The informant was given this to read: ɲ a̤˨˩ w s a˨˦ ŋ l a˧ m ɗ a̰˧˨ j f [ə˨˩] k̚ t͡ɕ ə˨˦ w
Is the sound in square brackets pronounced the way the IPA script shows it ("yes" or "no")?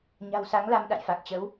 no